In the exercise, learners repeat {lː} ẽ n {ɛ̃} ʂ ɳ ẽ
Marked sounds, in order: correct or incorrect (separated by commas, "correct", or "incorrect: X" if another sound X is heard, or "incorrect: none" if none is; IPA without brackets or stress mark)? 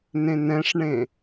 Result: incorrect: n, correct